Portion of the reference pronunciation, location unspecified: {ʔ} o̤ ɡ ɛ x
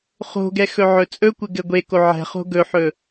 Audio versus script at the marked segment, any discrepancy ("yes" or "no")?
yes